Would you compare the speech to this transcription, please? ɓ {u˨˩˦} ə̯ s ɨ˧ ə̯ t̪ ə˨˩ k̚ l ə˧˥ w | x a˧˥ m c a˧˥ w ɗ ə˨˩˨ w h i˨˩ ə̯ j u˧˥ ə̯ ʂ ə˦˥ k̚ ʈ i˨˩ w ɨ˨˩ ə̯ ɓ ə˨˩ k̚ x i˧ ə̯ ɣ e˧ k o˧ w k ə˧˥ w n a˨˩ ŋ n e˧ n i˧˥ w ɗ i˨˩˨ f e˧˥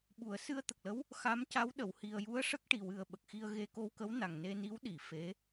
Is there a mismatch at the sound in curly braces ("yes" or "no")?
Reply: no